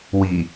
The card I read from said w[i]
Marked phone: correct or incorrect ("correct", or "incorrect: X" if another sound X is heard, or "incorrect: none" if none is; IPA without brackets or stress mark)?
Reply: correct